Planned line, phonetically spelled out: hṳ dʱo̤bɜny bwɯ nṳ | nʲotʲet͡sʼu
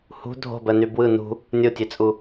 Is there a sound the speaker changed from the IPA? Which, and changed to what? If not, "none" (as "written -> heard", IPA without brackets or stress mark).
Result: none